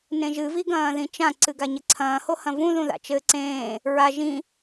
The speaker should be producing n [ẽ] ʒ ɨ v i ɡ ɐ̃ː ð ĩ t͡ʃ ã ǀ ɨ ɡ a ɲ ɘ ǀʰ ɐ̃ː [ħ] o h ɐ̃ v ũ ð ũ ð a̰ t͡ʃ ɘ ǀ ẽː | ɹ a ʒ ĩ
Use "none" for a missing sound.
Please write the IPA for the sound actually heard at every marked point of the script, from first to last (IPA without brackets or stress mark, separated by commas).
ẽ, h